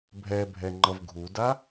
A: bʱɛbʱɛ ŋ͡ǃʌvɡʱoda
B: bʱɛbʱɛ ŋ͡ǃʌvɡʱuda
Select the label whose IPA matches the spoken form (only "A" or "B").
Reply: B